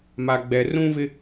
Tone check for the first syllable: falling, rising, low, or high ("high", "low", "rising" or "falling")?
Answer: high